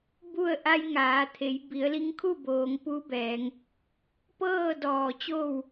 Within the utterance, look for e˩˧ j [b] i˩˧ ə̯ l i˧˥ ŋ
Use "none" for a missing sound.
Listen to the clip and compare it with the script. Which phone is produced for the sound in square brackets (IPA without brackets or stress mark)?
b